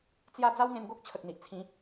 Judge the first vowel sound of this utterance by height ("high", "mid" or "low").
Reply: low